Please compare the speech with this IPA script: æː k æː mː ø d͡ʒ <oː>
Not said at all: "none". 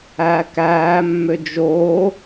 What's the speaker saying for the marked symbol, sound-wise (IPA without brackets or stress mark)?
oː